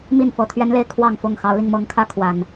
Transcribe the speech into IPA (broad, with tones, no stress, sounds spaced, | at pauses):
m i˥˨ n f ɤ˨˩ t̪ʰ ɥ ɛ˦ n l e˥˨ ɪ̯ kʰ w ɑ˥˨ ŋ f ʊ˥˨ ŋ x ɑ˨˦ ʊ̯ l i˧ ŋ m ɤ˨˦ ŋ kʰ ä˦ kʰ w a˨˩ n